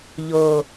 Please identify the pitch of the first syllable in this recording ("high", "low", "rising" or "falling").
low